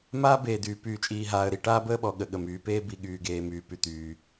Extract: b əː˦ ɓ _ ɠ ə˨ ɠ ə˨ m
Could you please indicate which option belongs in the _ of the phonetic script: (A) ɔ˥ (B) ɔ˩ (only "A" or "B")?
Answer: B